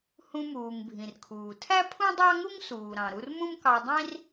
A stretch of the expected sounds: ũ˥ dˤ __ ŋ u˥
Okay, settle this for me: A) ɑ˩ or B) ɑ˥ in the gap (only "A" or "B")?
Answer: B